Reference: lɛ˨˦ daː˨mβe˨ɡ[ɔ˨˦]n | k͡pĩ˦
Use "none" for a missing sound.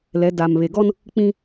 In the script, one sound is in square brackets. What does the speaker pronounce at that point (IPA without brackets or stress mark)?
ɔ˦